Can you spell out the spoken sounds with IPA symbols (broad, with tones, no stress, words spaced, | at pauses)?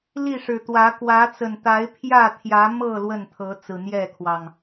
li˥˨ʂɻ̩˨˩t̪wä˨˦ kwä˨˦t͡sə˨˩n t̪a˨˦ɪ̯pʰjä˥˨ t̪ʰjä˨˦mɤ˥˨ lwə˥˨nt̪ʰɤ˨˦ t͡sɹ̩˨˩n̪jɛ˥˨kʰwɑ˨˩ŋ